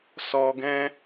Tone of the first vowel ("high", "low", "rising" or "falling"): low